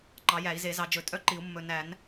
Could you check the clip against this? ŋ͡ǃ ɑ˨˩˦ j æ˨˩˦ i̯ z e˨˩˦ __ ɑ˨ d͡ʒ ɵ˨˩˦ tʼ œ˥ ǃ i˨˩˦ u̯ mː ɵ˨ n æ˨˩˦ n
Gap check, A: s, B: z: B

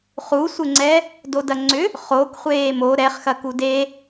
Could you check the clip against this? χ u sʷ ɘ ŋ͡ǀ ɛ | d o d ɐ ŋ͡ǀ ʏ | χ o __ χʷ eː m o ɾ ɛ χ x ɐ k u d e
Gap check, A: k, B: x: A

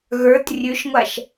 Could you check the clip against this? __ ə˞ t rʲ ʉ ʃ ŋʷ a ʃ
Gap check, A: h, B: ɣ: B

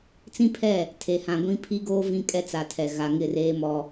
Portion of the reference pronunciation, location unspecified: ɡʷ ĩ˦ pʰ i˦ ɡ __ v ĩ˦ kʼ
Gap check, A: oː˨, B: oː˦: B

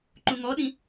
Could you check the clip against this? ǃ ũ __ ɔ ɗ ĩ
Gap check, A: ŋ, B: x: A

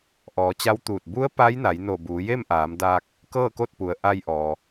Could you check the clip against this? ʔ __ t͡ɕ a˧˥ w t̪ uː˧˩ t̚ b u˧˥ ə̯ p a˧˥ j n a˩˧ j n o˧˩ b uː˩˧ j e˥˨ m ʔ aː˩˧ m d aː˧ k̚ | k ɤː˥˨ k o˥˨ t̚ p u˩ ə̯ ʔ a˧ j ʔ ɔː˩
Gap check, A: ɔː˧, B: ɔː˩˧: B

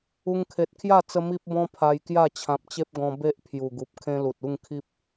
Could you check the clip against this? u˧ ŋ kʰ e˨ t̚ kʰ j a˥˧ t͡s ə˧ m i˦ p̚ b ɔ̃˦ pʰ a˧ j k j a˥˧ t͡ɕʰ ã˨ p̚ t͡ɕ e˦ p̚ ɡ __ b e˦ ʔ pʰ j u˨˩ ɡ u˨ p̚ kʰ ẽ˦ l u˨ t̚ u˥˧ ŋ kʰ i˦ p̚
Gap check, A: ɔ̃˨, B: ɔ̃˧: B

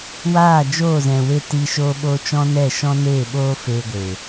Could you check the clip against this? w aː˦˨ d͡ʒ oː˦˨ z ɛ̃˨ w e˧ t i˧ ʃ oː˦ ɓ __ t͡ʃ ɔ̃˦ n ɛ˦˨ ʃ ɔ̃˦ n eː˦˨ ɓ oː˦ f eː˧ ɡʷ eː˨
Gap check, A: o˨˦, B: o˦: B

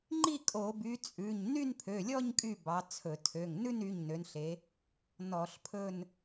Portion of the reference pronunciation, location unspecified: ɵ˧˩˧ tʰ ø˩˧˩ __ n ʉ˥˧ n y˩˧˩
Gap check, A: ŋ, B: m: A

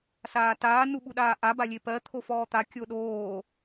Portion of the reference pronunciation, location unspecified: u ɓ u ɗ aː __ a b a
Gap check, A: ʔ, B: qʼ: A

